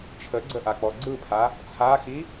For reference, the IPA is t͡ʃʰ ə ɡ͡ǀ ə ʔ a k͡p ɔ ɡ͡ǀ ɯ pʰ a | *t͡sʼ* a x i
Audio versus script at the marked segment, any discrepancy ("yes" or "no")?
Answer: yes